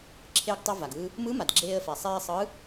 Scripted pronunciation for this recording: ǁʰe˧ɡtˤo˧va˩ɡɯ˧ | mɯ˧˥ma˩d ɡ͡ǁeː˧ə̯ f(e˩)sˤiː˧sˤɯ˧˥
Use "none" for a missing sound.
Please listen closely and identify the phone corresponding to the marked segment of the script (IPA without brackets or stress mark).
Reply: ɛ˩